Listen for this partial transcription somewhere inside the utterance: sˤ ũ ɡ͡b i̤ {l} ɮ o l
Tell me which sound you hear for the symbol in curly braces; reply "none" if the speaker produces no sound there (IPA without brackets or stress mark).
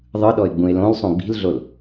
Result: l